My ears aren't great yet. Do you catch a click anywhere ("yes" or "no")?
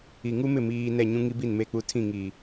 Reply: no